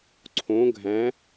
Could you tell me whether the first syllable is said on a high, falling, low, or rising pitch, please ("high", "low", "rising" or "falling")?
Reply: rising